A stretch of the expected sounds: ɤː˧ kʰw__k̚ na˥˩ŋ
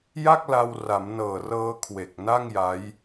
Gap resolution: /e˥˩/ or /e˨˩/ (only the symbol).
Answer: e˨˩